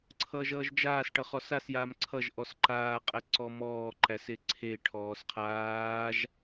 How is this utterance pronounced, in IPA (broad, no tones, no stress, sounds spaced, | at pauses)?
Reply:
ǀʰ ʌː ʒ ʌː ʒ d͡ʒ aː s ʈ ʌ χ ɔ s a s j aː m ǀʰ ʌ ʒ ʔ ɔ s ǃ aː qʼ æ ǀ ɔ m ɔː ǃ æ s e ǀʰ e ʈʰ ɔː s qʰ aː ʒ